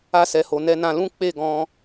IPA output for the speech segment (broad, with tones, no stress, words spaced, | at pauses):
a˧sɛ˨ho˨ nɛ˧nã˧lũ˦ k͡pe˦˨ɡɔ̃˧